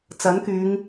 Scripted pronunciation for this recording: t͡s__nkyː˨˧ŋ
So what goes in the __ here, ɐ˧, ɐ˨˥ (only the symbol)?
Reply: ɐ˨˥